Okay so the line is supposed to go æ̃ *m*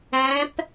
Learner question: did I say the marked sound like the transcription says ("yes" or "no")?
no